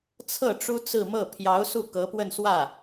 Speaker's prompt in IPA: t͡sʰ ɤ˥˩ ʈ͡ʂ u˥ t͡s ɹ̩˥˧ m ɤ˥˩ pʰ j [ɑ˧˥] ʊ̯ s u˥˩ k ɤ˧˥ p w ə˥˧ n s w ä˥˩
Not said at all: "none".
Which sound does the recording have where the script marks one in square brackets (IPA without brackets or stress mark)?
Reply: ɑ˧˥